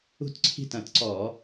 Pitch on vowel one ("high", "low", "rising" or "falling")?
falling